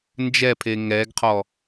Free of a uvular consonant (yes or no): no